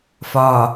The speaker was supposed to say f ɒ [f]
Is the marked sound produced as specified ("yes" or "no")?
no